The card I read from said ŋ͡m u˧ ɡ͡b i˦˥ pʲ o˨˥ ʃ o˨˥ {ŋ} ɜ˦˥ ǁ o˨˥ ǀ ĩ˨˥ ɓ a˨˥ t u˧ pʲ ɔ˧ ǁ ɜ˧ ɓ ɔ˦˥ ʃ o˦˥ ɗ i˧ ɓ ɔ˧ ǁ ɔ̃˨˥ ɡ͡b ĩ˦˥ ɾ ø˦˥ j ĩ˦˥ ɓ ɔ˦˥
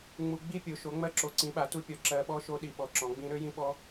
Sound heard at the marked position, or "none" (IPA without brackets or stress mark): ŋ͡m